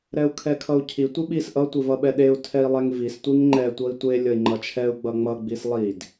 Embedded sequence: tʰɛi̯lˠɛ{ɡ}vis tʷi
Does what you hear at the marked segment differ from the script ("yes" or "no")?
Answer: yes